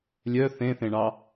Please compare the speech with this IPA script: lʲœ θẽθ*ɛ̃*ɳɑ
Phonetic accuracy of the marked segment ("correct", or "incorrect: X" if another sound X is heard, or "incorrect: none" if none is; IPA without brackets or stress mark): incorrect: ẽ